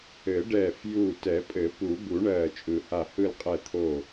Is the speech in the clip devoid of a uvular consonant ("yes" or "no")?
no